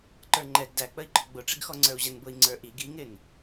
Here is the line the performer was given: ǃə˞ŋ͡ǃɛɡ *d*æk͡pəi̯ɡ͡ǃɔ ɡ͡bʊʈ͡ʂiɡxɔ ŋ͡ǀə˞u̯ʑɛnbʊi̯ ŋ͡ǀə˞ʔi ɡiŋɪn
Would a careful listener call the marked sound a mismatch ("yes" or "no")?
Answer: no